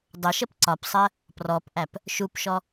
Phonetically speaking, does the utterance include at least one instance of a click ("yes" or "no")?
yes